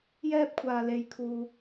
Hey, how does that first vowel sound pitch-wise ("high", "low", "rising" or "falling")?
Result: high